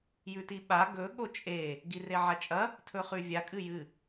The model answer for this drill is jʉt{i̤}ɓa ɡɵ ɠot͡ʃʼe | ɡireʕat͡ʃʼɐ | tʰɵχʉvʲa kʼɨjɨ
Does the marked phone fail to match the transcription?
yes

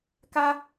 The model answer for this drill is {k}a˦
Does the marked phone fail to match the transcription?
no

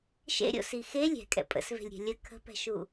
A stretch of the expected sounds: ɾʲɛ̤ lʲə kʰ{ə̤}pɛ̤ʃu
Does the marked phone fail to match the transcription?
no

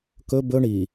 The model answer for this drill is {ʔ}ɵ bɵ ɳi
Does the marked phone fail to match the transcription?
yes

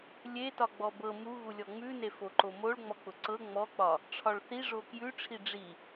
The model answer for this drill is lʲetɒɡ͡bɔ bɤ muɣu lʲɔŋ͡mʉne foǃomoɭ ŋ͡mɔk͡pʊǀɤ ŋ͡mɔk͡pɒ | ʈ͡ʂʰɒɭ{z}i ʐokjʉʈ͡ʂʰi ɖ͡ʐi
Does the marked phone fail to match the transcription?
yes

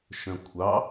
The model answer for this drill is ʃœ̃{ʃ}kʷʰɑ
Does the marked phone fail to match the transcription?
yes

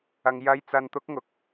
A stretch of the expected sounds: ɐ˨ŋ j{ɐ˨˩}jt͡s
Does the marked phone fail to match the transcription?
yes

